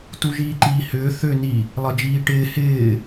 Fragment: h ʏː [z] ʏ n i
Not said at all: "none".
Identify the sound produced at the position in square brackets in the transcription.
θ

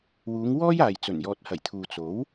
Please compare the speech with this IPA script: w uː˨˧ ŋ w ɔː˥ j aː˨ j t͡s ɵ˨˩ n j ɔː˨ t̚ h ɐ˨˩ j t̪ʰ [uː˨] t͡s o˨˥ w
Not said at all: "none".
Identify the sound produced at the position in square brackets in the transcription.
uː˨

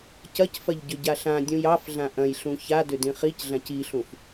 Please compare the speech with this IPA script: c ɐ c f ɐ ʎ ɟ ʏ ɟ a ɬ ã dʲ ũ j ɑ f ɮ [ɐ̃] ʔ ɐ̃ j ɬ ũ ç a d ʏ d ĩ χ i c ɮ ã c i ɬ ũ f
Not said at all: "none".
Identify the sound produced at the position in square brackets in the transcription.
ã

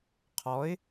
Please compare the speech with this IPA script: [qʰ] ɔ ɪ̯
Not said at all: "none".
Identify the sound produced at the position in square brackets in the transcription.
qʰ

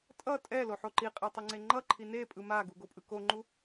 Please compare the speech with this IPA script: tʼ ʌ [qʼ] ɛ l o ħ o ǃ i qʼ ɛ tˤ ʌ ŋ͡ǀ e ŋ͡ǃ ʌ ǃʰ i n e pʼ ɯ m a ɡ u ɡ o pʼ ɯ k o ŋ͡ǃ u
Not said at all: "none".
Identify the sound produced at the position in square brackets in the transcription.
tʼ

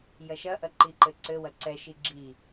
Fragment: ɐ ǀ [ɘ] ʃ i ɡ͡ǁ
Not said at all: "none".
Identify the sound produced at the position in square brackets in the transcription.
ɛ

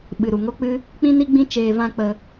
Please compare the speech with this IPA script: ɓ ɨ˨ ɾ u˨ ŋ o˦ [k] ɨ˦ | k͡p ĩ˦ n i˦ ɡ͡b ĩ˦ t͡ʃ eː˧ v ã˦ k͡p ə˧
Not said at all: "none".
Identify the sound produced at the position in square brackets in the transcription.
k͡p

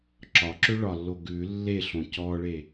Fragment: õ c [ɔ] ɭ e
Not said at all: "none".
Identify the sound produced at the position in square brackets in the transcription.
ɔ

